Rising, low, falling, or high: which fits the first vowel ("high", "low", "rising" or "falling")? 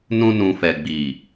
high